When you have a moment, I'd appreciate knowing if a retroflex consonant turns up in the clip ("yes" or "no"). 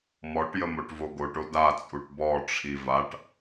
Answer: yes